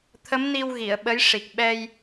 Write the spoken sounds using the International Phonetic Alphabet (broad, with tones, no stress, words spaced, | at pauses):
t̪ʰə˧˥mni˧w ɣi˨˩˨ə̯ɓə˧˥j ʂi˨˩k̚ɓɛ˧j